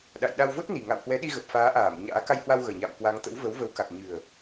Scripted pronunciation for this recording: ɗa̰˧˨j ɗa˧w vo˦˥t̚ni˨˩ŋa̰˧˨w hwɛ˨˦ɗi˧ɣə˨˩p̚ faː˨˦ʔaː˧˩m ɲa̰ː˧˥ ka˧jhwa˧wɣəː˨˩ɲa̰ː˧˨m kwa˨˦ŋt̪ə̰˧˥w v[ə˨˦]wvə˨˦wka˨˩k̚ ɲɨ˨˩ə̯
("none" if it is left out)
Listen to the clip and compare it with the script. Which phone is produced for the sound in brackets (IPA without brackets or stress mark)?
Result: ə˨˦